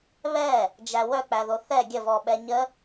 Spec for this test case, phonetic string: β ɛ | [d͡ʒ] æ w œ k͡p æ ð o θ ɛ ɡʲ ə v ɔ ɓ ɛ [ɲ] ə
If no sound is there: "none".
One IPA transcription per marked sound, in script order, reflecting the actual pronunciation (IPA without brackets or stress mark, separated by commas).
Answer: d͡ʒ, ɲ